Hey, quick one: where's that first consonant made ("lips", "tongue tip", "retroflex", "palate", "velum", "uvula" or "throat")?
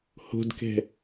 throat